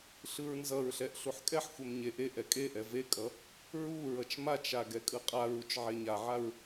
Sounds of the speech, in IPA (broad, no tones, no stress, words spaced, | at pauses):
ɬɯɹnzʌɹɬɛʔ ɬuħkʼɛħxʷem ɲe ʔe ʔɛkʼeʔɛ vekʼʌ | ɹuɹʌt͡ʃ mat͡ʃa ɡɛkʼɯqʼaɹut͡ʃ ʕeɲaʕaɹ